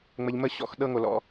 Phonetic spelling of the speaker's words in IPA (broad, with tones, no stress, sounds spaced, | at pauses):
ŋ͡m ə˨ ʎ m ə˦˨ ɕ ɔ̰˦˨ x ɗ ɤ˦ ŋ o˨ l ɔ̰˦